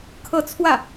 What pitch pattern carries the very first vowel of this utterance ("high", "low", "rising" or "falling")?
falling